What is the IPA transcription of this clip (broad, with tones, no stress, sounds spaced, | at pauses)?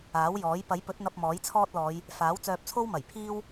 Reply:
aː˨˥ w j ɔː˨˥ j p ɐ˨˥ j p ɵ˨˥ t̚ n̪ ɐ˧ p̚ m ɔː˨˥ j t͡sʰ ɔː˥ t̚ l ɔː˨˧ j | f aː˨˥ w t͡s œː˧ p̚ t͡sʰ o˥ w m ɐ˨˩ j pʰ iː˥ w